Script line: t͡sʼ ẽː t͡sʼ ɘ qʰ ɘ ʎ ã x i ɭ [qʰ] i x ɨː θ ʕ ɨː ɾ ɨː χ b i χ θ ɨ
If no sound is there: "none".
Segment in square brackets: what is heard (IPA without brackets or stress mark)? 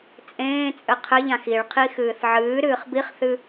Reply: qʰ